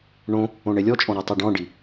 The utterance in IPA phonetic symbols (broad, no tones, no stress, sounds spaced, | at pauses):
ɳ õ | õ ɳ e lʲ ɔ t͡ʃʼ ɔ̃ ɾ e tˤ i ɖ ɔ̃ ɖ i